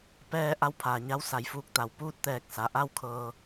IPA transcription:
pɛː˧ ʔa˧˥wpʰaː˩ɲa˧˥w sa˩˧jfuː˧˩k̚t̪a˩w puː˥˨t̚t̪ɛː˧˩k̚ sa˩ʔa˥˨wkʰɤː˧

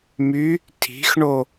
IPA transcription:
my | tʰi̤xɳo

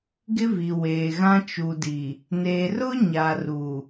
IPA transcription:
ɡɪ˦vi˨ weː˨ɣã˦ t͡ʃu˨di˨ | ne˨rʊ˦ ɲa˨ ruː˨

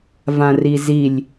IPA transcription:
vãrizilʲ

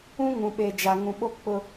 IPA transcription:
ũ˦ŋũ˨ɓe˨ d͡ʒa˨ŋũ˨ɓo˦ k͡pʊ˦

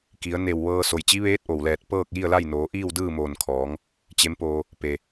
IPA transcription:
ki˩˧ə̯ ne˧˩wʋɤː˧ so˩jt͡ɕi˧˥ʋeː˧˥t̚ ʔo˩wlɛː˧˩t̚ pɤː˥˨k̚ji˥˨ə̯la˥˨jnoː˩˧ ʔiː˥˨wdɯː˥˨moː˧˩nkʰɔː˩˧ŋ | t͡ɕe˧˥mpoː˧ | pe˩

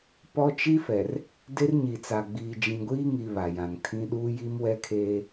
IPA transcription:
pɔ˦t͡ʃi˦fɛ˨r | de˦rɲi˨t͡sa˨ ɡ͡biː˨d͡ʒĩ˨ɡʷiː˦ŋi˨ βa˨jã˨ŋtʰĩ˦ ɗuː˦ji˦mwɛ˦kʰeː˦

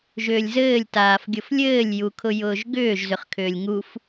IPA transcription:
ʒʏːlʲzɘːlʲ taːfɡʲʊflʲɘːlʲ jukʰʊjʊːʒɡʏːʒ zʏχkʰʏːlʲŋuf

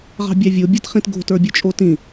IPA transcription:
ʁɑ̤bʲɑvʲo bʲatχĩtɡo̤ tə˞bʲə˞t͡ʃʼotĩ

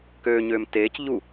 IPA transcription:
køːɲøːm teːc ʎu

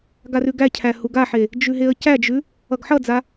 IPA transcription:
ɡarʉɡæcʰæ huɡaħe | d͡ʒʉɦeə̯cæd͡ʒʉ | ʌɡħʌd͡za

